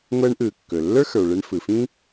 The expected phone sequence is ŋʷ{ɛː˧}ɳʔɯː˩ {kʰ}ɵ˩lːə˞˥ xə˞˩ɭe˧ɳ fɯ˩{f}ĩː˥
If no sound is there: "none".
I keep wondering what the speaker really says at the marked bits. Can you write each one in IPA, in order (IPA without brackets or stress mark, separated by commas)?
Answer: ɛː˧, kː, f